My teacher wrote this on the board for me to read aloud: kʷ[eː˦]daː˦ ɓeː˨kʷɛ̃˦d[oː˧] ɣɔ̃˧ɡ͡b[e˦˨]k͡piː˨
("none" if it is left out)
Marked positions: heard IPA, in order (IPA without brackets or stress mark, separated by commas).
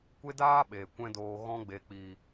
e˦, oː˧, e˨